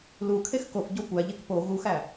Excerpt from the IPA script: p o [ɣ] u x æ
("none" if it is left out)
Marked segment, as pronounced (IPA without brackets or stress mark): ɣ